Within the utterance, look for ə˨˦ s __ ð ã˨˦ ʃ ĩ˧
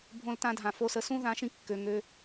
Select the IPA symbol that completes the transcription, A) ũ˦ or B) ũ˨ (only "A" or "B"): A